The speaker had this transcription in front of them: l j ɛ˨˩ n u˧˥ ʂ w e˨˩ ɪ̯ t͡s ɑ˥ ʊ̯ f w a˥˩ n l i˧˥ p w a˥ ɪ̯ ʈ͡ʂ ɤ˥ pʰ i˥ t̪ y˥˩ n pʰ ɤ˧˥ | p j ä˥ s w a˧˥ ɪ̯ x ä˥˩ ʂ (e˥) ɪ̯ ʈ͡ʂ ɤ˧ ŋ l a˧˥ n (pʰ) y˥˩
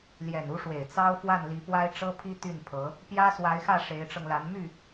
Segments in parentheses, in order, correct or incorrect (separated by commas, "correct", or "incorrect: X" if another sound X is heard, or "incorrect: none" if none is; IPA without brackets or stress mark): incorrect: e˧˥, incorrect: m